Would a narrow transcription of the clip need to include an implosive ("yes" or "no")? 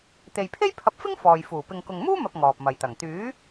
no